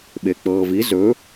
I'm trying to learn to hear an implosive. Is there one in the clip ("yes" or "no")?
yes